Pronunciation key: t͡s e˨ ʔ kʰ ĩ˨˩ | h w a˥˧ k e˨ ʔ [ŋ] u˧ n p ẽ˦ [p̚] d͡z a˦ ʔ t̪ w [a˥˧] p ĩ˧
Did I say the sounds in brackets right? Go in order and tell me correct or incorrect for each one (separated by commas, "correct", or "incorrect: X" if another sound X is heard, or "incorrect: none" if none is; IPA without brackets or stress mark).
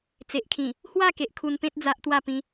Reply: incorrect: kʰ, incorrect: t̚, correct